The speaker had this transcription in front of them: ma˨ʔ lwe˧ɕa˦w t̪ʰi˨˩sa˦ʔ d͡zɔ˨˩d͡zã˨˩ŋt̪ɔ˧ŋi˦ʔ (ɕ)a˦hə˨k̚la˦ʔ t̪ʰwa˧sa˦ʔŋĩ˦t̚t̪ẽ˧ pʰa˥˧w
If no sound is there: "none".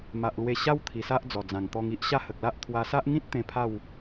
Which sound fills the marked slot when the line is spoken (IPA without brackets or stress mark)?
ɕ